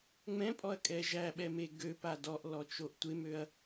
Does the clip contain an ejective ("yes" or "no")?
yes